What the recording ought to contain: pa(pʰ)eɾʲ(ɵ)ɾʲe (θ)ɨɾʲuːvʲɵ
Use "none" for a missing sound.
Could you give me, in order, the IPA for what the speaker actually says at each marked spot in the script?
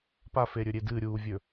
f, ɵ, d

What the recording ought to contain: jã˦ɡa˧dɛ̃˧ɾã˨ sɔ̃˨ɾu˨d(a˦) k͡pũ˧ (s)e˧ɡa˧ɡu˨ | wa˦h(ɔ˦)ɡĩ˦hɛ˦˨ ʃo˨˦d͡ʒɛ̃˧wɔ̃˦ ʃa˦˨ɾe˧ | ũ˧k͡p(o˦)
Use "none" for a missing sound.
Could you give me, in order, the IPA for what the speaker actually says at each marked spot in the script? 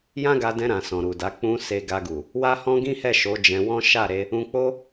a˨˦, s, ɔ̃˦, o˦

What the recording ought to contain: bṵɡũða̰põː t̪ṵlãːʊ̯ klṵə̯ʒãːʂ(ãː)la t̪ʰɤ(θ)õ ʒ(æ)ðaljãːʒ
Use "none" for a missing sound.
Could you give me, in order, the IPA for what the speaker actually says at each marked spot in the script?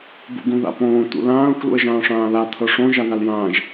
ãː, ʂ, a

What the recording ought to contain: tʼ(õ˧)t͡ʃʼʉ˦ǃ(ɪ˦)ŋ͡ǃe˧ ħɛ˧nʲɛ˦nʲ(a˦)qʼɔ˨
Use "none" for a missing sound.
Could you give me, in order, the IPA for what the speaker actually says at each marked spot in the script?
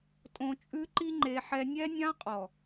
õ˧, i˦, ã˦

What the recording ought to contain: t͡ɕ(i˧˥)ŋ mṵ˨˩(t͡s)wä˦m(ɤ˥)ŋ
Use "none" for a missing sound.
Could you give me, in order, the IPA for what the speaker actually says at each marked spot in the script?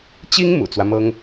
i˥, t͡s, ɤ˥

